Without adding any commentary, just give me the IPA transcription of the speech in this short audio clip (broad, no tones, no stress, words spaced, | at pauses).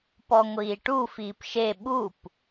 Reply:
pɔŋʷiːʈu fiːpʃe ɓup